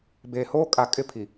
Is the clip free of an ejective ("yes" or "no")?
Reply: no